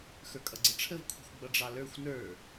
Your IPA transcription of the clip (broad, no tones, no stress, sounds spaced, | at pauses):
x ə˞ kʼ ʌ ɡ͡ǀ ə ʈ͡ʂʰ ə v kʷʰ i̤ xʷ ɡ͡b ʌ ɖ͡ʐ ɑ l ə˞ xʷ n ə˞